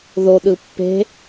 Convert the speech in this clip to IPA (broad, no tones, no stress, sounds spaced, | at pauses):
ð o ɗ ɯ pː e̤